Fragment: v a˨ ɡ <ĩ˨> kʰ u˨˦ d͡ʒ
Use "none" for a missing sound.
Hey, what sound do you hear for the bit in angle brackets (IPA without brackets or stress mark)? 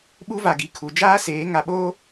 i˨